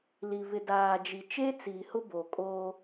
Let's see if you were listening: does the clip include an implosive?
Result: no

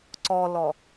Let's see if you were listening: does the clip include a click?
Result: yes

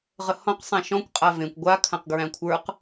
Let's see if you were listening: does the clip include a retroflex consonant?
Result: no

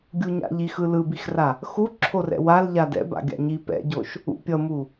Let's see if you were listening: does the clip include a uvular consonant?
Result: no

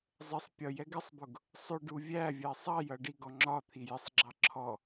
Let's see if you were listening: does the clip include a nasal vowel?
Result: no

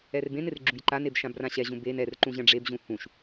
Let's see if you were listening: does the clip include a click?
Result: yes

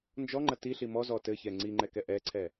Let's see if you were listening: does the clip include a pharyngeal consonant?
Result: no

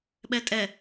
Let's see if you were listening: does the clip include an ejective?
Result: yes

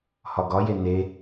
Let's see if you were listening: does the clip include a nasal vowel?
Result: no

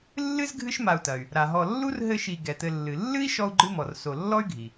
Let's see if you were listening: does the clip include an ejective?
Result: no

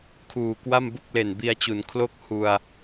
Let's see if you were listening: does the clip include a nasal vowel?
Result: no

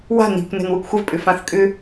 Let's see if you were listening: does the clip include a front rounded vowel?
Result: yes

